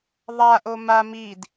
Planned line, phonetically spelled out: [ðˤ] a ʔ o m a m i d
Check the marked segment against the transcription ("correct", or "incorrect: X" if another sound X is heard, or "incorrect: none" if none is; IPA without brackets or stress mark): correct